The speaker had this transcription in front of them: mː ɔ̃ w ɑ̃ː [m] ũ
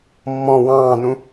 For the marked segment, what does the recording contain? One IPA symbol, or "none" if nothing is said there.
n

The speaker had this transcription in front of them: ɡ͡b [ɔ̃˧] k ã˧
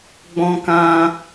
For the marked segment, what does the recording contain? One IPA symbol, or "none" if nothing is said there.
ɔ̃˧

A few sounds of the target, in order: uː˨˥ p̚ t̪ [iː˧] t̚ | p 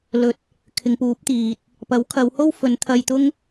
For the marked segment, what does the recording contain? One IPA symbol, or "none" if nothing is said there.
iː˨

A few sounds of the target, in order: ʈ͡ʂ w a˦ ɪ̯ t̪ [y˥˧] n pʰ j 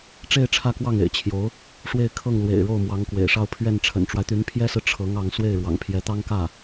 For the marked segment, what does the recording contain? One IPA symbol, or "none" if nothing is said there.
y˧˥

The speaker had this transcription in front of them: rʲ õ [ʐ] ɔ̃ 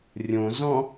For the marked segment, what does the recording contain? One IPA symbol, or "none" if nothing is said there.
z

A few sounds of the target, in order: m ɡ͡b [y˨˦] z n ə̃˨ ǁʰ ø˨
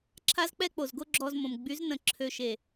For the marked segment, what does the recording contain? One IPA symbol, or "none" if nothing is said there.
y˨˦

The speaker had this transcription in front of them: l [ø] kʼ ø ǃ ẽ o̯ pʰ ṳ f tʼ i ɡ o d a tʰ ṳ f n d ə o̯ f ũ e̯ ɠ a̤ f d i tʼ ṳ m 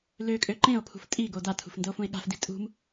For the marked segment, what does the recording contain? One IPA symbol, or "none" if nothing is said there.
ø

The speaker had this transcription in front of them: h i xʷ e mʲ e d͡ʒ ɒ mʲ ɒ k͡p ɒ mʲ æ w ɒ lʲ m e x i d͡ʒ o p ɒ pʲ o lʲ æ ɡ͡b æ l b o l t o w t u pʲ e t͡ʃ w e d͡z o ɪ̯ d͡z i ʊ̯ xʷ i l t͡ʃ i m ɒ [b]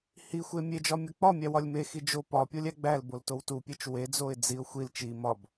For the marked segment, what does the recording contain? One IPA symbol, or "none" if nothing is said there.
b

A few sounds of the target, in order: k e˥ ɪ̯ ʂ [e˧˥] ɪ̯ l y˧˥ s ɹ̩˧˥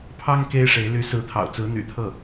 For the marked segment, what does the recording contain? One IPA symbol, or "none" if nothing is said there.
e˧˥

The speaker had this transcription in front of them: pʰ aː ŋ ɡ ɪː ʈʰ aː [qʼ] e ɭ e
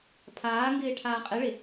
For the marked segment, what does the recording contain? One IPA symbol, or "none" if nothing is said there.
qʼ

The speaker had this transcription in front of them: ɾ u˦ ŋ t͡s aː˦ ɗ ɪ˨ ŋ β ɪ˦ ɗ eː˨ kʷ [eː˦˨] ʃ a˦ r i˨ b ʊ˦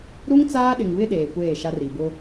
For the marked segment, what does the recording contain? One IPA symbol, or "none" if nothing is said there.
eː˦˨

